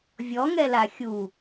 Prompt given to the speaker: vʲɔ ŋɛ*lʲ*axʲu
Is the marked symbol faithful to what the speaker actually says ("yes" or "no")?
no